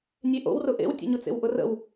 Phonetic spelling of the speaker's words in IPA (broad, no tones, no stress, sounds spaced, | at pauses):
nʲ e ʔ o̰ w r ʊ ʔ ḛ w tʲ ḛ ɲ ʊ t͡s ḛ w ʔ ʊ r ə̰ w